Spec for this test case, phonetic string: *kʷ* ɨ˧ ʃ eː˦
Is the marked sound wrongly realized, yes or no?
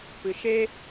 yes